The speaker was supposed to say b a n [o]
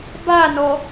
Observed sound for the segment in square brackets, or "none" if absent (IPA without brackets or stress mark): ɔ